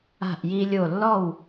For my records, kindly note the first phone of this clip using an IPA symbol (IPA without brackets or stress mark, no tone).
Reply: a̤